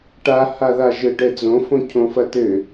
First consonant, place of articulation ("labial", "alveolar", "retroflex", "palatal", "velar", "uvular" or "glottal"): retroflex